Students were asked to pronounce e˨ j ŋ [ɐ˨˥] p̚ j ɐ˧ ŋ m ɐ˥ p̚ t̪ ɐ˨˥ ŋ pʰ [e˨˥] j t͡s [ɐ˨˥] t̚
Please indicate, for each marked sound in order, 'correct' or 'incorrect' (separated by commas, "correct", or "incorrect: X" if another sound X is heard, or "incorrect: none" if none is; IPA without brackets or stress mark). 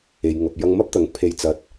incorrect: ɐ˨, incorrect: e˨, incorrect: ɐ˨